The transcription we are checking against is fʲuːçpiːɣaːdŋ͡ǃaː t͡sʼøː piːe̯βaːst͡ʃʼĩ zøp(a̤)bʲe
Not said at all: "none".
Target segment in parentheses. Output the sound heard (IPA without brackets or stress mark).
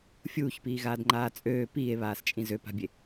a̤